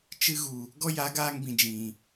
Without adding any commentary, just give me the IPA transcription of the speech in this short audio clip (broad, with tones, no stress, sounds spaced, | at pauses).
t͡ʃ ɨ˧ ɣ u˨ | ɡ ɔ˦ j a˨˦ ɡ aː˧ ŋ b ĩ˨ d͡ʒ ĩ˨